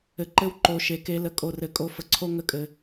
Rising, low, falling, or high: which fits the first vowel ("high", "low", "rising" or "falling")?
low